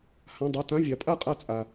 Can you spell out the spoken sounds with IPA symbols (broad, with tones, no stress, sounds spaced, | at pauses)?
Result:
h ã˧˥˧ dˤ ʌ˧˥˧ t ã˧˥˧ vʲ a˨˥ pʼ a˥˨ qʼ a˥˨ t͡sʼ a˧